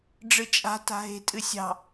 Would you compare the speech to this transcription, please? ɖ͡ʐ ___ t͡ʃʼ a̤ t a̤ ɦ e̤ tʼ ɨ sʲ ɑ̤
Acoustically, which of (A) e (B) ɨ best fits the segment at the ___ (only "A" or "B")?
B